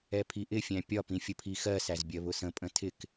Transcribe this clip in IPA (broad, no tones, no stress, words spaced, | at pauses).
ɛpʰiʔɪfʲæ̃ pʲɒpĩ fʲəpʰixɜsæz bʲɜβʊsə̃pʼə̃ tʰɪk